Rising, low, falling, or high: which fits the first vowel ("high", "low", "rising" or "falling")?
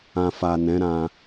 low